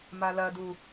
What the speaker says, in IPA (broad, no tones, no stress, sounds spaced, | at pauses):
m a l ɐ d u